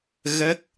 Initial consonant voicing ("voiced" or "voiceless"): voiced